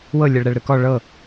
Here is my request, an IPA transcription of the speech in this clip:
w ɤ lʲ ɛ ɭ ɾ ɛ ɭ ɾ ɯ k ɔ ɭ ɤ

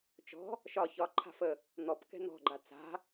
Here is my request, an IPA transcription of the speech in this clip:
t͡ʃ ɔ̤ | ʃ ɒ ç ɒ ǃʰ a̤ f ə | n̪ ɔ p k ɛ̤ n̪ ɔ̤ ɡ͡ǃ a t͡s a̤

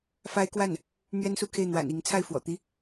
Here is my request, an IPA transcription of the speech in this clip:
f a˥ ɪ̯ k w a˥˩ n | n̪ ɥ ɛ˥ n s u˥˧ kʰ e˥˩ ɪ̯ n̪ w a̰˨˩ n i˧˥ ŋ t͡sʰ a˥˩ ɪ̯ f w ɔ̰˨˩ t̪ i˥

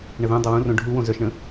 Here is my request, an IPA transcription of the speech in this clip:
ɳ ə ð œ̃ dˤ ə w ũ r õ ɖʱ u w õ z œ ʃ ɳ ə̃

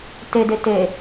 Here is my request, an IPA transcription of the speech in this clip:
t e d e t e

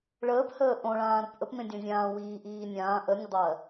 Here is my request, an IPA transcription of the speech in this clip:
ɭ əː p h əː ʔ õ ɭ ãː ɾ o p ʔ ə p m ẽ dʲ õ zʲ ãː w iː ʔ iː nʲ ãː ʔ ə nʲ ə dˤ ɜ

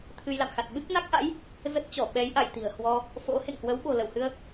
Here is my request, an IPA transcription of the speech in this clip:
t̪ʰ ɨ˧ j l a̰˧˨ m x a˨˩ t̚ ɓ ɨ˦˥ k̚ n a˦˥ k̚ ʔ a̰˧˥ j | z ə˦˥ t̚ t͡ɕ ɔ˧˩ ɓ ɛ˨˦ j ʔ a˧˩ j t̪ i̤˨˩ ə̯ h w ɔ˧ | f o̰˧˥ h ḛ˧˨ ŋ h w ə˨˦ w ɓ o̤˨˩ l ə˧˩ w h ɨ˧ ə̯

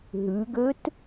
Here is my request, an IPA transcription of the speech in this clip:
ɦ ʉ ɡ ø t

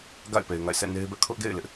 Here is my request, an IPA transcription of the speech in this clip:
ɡ a̰˦˨ ɪ̯ p e˨ ɪ̯ ŋ a̰˦˨ ɪ̯ sʰ ɛ̰˦˨ n e˦ ɪ̯ b ɛ˦ ʔ kʰ ʊ˦ ʔ ɡ ḛ˦˨ ɪ̯ l ɪ˦ ʔ

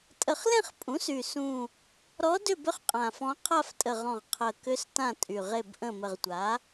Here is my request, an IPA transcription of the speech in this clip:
tʼ ə˨˩ χ l ẽ˦˨ χ pʼ ũ˩˥ s y˨˩ s ũ˨˩ | ɾ ɔ˧˥ d ʏ˦˨ b ʏ˧˥ χ qʼ ã˨˩ f ɔ̃˧˥ qʰ a˦˨ f tʼ ə˨˩ ʁ ɔ̃˨˩ ʁ qʰ ə˨˩ k ʏ˧˥ s t ã˦˨ tʼ y˨˩ ʁ e˦˨ b ʔ ə̃˦˨ m ə˨˩ ʁ tʷ a˩˥

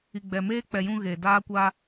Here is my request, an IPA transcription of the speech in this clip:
i˨ ɡ͡b ɛ˨ m eː˦ k͡p ɛ˨ j ũ˦ ɣ e˨ d aː˦ kʷ a˦

